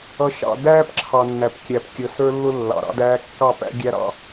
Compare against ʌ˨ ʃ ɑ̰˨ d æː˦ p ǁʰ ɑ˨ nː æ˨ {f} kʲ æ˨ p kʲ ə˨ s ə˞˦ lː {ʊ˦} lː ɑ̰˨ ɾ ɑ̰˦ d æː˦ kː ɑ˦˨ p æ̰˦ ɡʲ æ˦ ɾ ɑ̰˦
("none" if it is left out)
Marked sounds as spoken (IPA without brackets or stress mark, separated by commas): p, ʊ˦